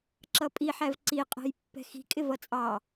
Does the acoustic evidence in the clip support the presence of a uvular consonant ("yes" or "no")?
yes